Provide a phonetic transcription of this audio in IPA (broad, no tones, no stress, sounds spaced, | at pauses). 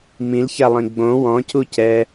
m ĩ l ç a lˠ ĩ ɡ͡b õ w ɔ̃ c u c ɛ